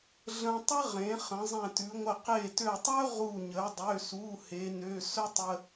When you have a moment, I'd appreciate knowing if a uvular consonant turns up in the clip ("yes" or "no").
yes